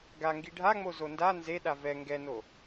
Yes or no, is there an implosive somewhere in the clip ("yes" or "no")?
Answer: yes